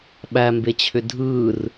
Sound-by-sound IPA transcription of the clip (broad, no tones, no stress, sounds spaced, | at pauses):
ɓ æ m b e t͡ɕʰ ʏ dʱ ɯː r